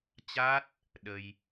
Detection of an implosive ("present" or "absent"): present